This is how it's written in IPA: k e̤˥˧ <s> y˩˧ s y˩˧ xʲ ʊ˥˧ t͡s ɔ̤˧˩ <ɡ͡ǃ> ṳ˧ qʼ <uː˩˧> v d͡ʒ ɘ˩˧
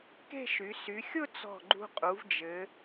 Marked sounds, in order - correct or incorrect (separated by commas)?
incorrect, correct, incorrect